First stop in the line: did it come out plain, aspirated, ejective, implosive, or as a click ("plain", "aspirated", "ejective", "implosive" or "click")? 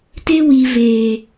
plain